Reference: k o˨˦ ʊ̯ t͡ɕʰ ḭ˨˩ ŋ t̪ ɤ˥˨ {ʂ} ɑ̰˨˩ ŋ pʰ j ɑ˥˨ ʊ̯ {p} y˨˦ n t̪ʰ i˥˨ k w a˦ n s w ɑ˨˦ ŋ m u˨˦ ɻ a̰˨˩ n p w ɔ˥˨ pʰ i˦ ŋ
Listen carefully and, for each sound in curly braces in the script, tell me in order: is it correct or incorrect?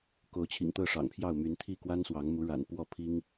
correct, incorrect: m

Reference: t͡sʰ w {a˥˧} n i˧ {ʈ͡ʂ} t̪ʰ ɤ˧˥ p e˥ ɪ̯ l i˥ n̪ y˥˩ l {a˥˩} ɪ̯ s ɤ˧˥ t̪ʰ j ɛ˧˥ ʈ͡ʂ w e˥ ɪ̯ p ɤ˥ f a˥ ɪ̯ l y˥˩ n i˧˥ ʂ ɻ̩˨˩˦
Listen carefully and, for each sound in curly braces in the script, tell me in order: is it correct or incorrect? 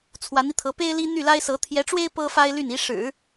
incorrect: a˧˥, incorrect: none, incorrect: a˥

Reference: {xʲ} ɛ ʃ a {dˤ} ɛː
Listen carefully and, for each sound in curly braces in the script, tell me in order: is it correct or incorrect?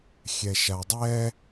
correct, correct

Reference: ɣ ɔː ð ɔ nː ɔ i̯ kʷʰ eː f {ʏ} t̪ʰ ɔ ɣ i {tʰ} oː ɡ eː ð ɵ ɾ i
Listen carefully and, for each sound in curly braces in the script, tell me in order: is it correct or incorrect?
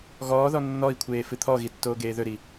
incorrect: ɨ, incorrect: tː

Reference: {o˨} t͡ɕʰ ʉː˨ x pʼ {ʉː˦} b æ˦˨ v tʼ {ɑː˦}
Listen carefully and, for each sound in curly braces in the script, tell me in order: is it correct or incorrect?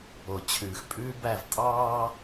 correct, correct, correct

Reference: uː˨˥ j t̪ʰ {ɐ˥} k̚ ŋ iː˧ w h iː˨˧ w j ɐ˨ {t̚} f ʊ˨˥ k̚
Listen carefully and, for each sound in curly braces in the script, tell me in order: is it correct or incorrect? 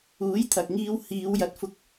incorrect: ɐ˨, correct

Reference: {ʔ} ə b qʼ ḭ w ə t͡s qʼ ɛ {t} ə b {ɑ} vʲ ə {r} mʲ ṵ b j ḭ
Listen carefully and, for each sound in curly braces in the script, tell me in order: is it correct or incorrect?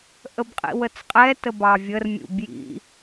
correct, correct, correct, correct

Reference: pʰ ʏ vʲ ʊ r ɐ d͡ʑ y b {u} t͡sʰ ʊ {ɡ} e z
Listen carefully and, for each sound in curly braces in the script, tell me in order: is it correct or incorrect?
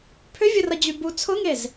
correct, incorrect: ŋ

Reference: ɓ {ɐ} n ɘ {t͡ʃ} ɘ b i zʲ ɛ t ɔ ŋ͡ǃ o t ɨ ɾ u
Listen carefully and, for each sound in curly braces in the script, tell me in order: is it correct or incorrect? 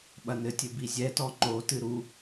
correct, incorrect: tʲ

